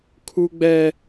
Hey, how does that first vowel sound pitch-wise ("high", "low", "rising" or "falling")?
high